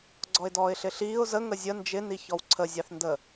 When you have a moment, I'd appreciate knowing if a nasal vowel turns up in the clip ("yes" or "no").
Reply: no